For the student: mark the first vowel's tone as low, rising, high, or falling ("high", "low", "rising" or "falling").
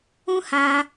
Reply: high